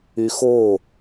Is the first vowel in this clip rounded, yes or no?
yes